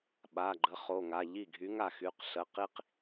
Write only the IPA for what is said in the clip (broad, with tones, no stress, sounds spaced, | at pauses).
ɓ a˩˧˩ ɡ͡ǃ ə˨˥ χ o˩˧˩ ŋ a˩˧˩ ʎ i˥˩ ɡʱ y˨˥ ŋ a˥˩ x y˩˧˩ q ɬ ə˩˧˩ q i˥ q